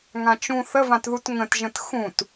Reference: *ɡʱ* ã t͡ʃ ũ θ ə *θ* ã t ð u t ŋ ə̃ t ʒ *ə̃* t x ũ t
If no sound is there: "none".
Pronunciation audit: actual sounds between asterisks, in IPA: ŋ, v, ə̃

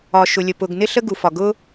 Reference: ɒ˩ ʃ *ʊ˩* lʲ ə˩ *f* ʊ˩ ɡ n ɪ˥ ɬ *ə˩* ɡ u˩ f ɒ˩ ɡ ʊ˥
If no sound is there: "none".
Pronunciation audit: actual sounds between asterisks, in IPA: ʊ˩, p, ə˥

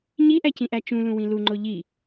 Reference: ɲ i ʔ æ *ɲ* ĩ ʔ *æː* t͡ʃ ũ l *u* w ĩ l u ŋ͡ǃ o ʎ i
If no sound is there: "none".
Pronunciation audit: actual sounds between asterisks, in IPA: c, æ, ũ

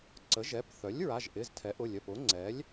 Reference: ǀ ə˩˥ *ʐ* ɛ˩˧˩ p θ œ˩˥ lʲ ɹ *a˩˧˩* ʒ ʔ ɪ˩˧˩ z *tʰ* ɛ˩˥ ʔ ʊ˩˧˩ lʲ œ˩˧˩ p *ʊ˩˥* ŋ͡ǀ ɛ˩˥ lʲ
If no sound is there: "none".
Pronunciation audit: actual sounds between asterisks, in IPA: ʒ, a˩˧˩, tʰ, ʊ˩˥

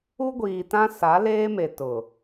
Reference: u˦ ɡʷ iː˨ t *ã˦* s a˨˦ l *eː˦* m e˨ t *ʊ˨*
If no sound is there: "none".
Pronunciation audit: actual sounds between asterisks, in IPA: ã˦, eː˦, ʊ˨

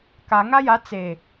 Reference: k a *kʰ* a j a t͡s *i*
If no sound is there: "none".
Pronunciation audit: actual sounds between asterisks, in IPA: ŋ, e

